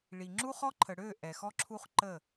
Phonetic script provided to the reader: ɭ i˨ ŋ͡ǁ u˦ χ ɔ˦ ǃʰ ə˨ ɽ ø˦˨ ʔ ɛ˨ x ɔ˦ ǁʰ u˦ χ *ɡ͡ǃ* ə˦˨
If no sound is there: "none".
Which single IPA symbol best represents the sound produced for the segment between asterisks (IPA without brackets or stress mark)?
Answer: ǃ